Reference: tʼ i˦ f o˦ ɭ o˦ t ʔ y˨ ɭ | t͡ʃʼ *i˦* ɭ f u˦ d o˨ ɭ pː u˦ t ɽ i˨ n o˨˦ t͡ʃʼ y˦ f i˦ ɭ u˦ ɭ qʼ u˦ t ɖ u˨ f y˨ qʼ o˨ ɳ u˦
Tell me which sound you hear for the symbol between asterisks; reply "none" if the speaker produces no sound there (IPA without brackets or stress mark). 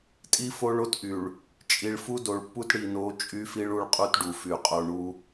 i˨